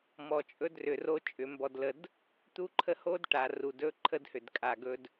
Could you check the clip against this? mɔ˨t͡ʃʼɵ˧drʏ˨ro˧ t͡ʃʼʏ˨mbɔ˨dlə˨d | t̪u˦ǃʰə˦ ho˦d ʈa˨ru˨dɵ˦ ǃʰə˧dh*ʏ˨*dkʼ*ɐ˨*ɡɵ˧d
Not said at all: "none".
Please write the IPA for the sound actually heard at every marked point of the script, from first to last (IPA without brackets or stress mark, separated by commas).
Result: ʏ˨, a˨